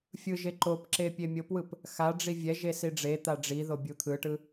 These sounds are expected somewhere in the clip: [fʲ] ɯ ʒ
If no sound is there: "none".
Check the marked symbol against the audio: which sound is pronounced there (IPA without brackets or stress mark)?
fʲ